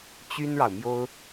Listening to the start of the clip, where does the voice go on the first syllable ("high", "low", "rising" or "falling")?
high